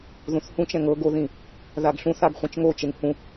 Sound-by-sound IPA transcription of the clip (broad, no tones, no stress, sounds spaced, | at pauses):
ð ũ θ h ũ t͡ʃ ɛ̃ ŋ ɤ ɡ o ð ĩ | ð a ɡ ɬ ũ θ a ɡ χʷ ĩ t͡ʃ ŋ o t͡ʃ e ŋ h ũ